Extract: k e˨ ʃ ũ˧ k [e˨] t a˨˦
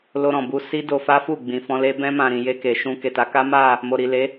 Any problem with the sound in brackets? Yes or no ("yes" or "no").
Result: no